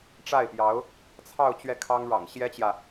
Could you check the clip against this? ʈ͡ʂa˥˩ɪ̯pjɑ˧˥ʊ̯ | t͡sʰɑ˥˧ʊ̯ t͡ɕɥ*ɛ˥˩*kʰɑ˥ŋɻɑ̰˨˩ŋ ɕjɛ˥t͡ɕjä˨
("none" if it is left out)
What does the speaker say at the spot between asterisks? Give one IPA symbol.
ɛ˥˩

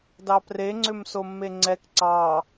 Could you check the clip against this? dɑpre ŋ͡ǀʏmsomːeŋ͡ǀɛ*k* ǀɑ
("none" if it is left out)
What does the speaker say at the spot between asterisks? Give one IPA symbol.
k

